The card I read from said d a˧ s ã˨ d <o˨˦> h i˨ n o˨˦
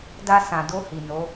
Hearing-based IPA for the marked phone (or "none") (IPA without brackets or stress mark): o˧